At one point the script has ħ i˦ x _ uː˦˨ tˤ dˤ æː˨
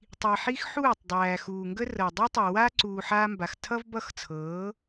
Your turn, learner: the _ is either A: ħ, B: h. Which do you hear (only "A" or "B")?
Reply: A